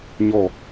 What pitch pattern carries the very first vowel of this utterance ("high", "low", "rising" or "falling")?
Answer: falling